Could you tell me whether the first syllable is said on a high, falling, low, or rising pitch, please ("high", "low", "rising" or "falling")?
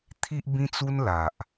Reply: high